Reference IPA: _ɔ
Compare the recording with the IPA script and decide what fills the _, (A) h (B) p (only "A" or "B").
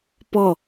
B